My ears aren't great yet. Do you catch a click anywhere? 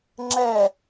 yes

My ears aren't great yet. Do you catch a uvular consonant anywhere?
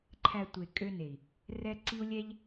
no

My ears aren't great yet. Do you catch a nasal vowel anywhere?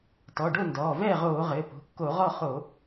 no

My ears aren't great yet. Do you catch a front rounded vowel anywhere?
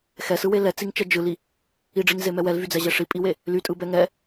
yes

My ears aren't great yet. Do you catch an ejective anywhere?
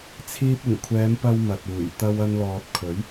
no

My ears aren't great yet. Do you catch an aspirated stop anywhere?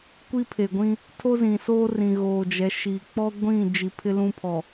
yes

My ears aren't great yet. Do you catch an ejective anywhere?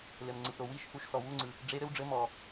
no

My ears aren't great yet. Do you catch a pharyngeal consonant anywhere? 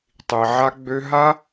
yes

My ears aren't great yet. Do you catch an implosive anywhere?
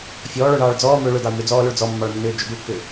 no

